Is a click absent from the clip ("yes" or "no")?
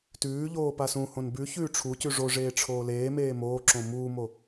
no